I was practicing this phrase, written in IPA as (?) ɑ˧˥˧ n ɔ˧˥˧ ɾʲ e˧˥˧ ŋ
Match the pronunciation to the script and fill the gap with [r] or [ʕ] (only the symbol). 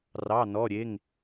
r